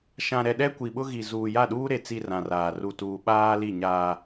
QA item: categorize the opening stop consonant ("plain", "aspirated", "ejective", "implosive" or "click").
implosive